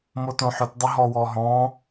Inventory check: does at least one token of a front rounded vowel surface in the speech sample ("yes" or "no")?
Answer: yes